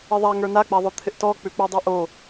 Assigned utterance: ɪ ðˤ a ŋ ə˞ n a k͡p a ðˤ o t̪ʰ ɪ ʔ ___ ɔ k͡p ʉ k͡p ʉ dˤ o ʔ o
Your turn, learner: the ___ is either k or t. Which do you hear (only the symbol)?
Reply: t